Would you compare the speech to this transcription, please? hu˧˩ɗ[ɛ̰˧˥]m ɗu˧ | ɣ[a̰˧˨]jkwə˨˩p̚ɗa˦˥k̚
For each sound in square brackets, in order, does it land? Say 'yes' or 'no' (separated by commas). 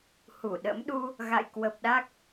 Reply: no, yes